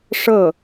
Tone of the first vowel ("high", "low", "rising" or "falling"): falling